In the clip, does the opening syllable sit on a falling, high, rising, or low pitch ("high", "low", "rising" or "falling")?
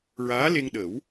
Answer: rising